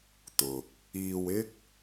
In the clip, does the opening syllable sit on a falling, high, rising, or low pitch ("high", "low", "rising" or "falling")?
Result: low